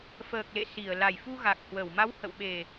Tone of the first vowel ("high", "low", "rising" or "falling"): low